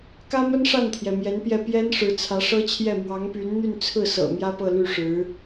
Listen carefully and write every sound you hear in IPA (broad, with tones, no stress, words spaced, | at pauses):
kä˥mə˥nʂa˥˩nt̪ʰjɛ˩ mjɛ˧˥npjɛ˥˩ pjɛ˥n ʂɻ̩˧˥t͡sʰä˧˥ʂɤ˥t͡ɕʰjɛ˥˩ mwɑ˧˥ŋpy˧˥n n̪y˥˧nt͡sʰɹ̩˥˩sɤ̰˨˩ mjä˥pɤ˥˧ly˥˩ʂɻ̩˧˥